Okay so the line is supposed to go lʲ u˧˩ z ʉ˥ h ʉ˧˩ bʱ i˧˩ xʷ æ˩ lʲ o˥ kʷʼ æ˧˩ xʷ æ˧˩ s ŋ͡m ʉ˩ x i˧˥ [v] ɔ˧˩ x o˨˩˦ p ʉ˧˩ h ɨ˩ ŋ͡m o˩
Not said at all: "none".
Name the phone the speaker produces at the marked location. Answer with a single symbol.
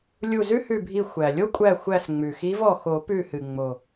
v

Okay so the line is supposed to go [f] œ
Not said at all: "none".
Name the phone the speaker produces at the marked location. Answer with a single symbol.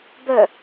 b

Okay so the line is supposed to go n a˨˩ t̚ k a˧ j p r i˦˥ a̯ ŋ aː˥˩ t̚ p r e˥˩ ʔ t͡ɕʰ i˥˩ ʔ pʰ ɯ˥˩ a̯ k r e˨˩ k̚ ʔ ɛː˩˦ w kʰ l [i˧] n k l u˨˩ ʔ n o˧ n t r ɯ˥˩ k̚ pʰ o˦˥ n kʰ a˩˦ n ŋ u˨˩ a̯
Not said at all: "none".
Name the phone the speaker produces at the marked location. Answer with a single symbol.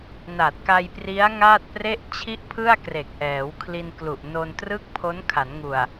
i˧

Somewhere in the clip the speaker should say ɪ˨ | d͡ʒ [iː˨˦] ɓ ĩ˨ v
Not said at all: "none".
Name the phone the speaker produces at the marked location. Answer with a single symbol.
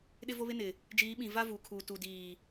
iː˨˦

